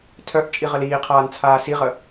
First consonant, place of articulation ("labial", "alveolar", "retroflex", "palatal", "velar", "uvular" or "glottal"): alveolar